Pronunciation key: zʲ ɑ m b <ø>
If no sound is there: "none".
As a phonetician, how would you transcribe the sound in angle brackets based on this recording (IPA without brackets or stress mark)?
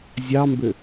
ø